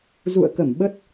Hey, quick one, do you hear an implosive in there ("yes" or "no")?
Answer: yes